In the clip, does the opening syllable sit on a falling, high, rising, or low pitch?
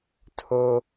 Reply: high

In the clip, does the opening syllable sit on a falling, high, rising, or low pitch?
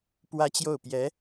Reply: high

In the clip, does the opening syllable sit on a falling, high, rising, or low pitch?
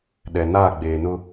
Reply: low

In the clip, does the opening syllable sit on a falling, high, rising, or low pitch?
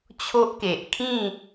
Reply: high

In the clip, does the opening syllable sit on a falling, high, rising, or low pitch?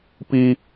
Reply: high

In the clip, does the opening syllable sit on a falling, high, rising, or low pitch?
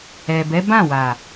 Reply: low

